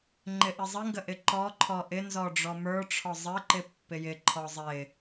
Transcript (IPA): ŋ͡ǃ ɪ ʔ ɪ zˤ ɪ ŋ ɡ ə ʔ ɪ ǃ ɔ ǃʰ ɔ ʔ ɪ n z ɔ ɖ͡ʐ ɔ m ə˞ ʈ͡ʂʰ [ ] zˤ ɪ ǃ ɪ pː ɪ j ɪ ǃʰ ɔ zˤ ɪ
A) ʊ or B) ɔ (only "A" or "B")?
B